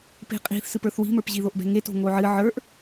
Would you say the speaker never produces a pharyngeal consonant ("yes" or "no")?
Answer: no